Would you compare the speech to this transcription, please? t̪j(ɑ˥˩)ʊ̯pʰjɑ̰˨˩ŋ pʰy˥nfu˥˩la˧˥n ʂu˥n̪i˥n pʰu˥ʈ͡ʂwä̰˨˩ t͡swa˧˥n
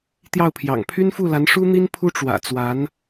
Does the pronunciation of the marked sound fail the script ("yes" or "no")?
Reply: no